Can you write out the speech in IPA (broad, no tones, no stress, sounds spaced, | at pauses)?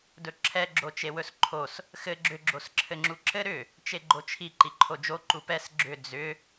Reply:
d ɵ ǁʰ ɛ ɡ͡ǁ o t͡ʃ e w ɵ s ǃʰ o s | x ɘ ɡ͡ǁ ʏ ɡ͡ǁ o s ǁʰ ɘ ŋ͡ǁ u ǁ ɘ ɾ ʏ | t͡ʃ e ɡ͡ǃ o t͡ʃʰ i ǃ i ǃʰ o d͡ʒ o ǃ u p ɛ s ɡ͡ǁ ʏ d͡z ʏ